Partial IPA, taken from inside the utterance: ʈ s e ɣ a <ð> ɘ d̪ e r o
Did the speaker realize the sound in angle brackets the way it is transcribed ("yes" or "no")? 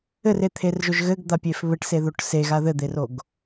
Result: yes